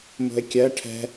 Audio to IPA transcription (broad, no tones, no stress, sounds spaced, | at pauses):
m o̤ e̯ kʲ ɜ ʈʰ ɛ̤